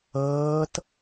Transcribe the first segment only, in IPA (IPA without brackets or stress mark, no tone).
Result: ɤː